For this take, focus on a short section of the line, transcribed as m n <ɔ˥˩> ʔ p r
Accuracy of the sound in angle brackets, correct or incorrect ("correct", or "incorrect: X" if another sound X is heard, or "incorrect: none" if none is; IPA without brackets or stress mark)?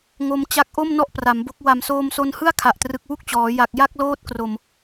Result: correct